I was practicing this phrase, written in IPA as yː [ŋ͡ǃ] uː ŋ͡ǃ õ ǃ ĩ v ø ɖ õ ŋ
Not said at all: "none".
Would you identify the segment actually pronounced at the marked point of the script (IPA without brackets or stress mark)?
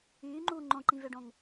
ŋ͡ǃ